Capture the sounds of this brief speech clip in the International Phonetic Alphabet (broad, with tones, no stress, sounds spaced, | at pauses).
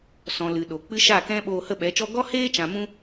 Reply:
s ɔ̃˨ l ɨ˨ ɗ o˨ k͡p ɨ˦ ʃ a˦˨ k ɛ̃˦ ɓ oː˧ h ə˦˨ ɓ ɛ˨˦ t͡ʃ ɔ˦ ɡ ɔ˦ h eː˦ t͡ʃ ã˨ m ũ˧